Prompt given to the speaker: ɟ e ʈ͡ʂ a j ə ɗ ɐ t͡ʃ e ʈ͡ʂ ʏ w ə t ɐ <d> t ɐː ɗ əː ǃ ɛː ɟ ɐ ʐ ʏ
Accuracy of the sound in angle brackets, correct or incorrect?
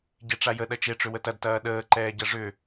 correct